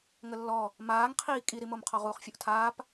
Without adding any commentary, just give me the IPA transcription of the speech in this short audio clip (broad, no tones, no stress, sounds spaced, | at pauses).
ŋ ə lː ɔ | m aː ŋ qʰ iː kʼ i ɾ i m o m qʰ ɔ ʁ uː χ fʲ o ʔ tʰ aː p